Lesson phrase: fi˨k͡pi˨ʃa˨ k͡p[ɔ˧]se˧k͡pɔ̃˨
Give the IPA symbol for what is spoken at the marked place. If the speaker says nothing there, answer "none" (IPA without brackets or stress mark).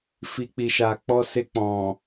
ɔ˧